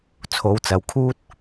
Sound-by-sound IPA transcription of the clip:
t͡sʰ o˨˧ w t͡s ɐ˨ w kʰ uː˥ t̚

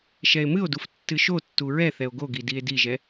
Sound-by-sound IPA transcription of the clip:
ʃ ɛ e̯ m ɨ o̯ d u f tː ɨ ʃ o tː u ɹ ɛ θ ɛ o̯ ɡ o ɡ i d i e̯ d i ʒ ɛ

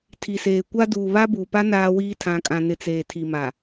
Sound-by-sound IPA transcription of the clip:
tʰ i˨ s eː˨ kʷ a˦ d uː˨ β a˦ b uː˨ p a˦ n aː˦ w iː˦ tʰ ã˨ kʼ ã˨ n ɪ˨ t͡s eː˨ tʰ i˨ m a˨

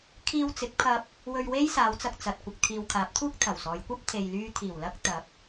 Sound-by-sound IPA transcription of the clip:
kʰ iː˧ w t͡s ɪ˨˥ k̚ pʰ ɐ˧ p̚ | w ɵ˧ ɥ w e˥ j s aː˨˧ w t͡s ɐ˧ k̚ t͡s ɐ˨ t̚ kʷ ɪ˨ k̚ t̪ʰ iː˨ w kʰ aː˨˥ p̚ t̪ʰ uː˥ k̚ t̪ʰ ɐ˨˩ w s ɔː˨˧ j kʷ ɐ˥ p̚ t̪ʰ e˨ j l yː˧ t̪ʰ iː˨˩ w l ɐ˥ k̚ t̪ ɐ˨˥ p̚

